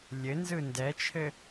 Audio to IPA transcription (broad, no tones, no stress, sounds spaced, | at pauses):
lʲ ɘ n z ɯ n d ɛ t͡ʃʰ ɘ